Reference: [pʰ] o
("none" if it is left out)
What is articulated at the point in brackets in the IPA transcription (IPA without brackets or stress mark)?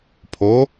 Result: pʰ